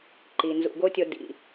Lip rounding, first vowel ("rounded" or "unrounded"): unrounded